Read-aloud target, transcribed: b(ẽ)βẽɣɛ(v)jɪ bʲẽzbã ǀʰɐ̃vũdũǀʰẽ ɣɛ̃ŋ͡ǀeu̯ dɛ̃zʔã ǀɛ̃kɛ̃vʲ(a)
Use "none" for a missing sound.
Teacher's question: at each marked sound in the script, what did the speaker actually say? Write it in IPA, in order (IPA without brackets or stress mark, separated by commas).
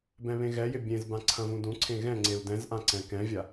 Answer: ɛ̃, none, a